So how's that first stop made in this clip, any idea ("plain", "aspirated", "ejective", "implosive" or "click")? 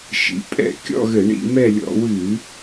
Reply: ejective